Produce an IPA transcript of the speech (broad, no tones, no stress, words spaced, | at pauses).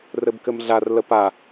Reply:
rɘbkɘmɮar ləpa